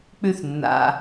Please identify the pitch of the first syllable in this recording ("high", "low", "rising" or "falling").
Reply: high